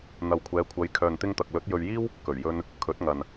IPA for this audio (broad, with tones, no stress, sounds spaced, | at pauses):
n̪ ɐ˨ w kʷʰ ɛː˨˧ kʷʰ ɐ˨˧ j kʰ œː˨ n t̪ ɪ˧ ŋ t̪ ɐ˨ k̚ l ɵ˨˥ t̚ j ɵ˧ ɥ j iː˥ w | k ɵ˨˩ ɥ j ɵ˧ n | kʰ ɵ˨˥ t̚ ŋ ɐ˨ n